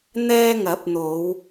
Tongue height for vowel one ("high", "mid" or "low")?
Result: mid